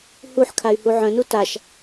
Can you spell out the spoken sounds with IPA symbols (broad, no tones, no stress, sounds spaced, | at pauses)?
h u ħ kʰ a y̯ h u ʕ œ̃ n u t a ʃ